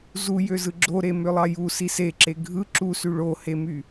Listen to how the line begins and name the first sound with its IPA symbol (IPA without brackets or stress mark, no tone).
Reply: z